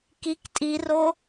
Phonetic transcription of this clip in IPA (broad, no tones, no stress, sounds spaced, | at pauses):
k i k tʼ i r o